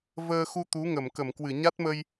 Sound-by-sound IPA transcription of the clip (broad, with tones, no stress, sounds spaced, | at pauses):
v əː˧ x u˧ t̪ u˨˦ ŋ ə˧˩ m k ə˧˩ m k w ɨ˧˩ ɲ a˦˥ t̚ m ə˧ j